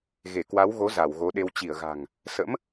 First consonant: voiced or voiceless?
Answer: voiced